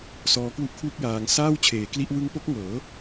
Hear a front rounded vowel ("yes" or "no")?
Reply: no